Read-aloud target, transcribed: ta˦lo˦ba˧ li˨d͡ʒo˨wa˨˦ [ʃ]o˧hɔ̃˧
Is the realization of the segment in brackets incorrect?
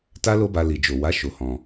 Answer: no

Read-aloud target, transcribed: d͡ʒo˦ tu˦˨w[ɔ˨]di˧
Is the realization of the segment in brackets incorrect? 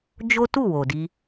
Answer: yes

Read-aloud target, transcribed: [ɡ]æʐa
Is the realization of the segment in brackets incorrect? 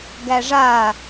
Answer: no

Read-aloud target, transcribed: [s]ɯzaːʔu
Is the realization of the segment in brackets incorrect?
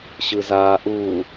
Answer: yes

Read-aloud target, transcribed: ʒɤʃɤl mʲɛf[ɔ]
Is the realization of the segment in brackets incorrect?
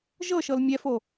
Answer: yes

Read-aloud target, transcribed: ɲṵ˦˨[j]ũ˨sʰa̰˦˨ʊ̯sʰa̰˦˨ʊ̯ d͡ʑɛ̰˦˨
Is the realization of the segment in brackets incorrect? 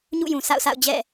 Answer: no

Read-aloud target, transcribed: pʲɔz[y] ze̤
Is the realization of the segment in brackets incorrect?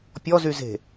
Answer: no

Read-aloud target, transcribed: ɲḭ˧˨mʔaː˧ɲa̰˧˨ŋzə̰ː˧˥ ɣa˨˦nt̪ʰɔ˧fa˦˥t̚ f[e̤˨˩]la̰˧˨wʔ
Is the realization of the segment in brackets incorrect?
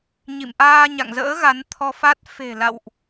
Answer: no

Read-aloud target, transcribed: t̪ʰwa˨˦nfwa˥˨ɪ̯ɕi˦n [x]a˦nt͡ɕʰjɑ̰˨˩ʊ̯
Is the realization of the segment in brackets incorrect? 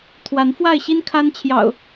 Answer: yes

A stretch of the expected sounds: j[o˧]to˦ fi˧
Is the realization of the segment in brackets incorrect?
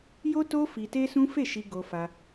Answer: yes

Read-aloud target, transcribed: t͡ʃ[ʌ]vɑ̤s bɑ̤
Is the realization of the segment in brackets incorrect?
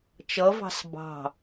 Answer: no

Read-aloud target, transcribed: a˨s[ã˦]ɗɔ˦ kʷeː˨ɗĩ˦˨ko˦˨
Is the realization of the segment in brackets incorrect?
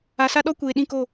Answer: yes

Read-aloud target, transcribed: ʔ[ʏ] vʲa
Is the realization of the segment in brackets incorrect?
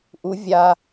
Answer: yes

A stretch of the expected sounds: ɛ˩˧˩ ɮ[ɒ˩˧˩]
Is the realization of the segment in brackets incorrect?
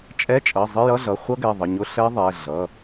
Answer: yes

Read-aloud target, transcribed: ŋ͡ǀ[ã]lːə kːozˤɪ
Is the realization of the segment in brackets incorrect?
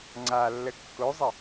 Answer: yes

